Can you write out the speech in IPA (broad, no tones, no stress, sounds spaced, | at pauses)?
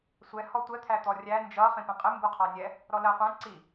sʷ ɛ h ɔ tʷ ɛ t̪ʰ æ t̪ ɔ rʲ æ n d͡ʒ ʌ χ ĩ p ɛ̃ qʼ ɪ m b u qʰ ɑ nʲ ɛ | ɾ ɔ l ɜ qʷ æ̃ ǀ i